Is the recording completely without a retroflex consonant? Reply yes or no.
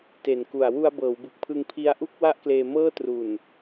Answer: yes